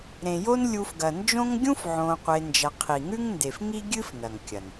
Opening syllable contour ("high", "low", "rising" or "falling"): low